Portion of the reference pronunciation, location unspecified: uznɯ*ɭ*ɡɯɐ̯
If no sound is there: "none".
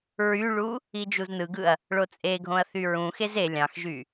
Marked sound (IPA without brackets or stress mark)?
none